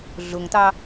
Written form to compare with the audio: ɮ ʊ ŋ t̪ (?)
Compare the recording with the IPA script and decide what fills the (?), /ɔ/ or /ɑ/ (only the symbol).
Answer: ɑ